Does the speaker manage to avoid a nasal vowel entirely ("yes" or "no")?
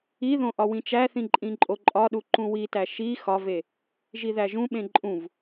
no